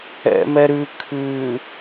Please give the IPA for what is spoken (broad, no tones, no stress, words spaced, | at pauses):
ɛ̰mɛ ɾʉ kʰʉ